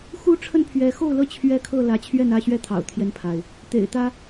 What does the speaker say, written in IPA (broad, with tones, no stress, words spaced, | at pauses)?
xu˦ʈ͡ʂʰə˥˨npʰɥɛ˨˦ xo˥˨ʊ̯lɤ˥˨ t͡ɕʰɥɛ˥˨kʰɤ˥˨ lä˨˦t͡ɕʰɥɛ˥˨nä˥˨ɕɥɛ˥˨ t̪ʰɑ̰˨˩ʊ̯t̪ʰjɛ˦npʰa˩ɪ̯ | t̪ḛ˨˩ɪ̯t̪ä˦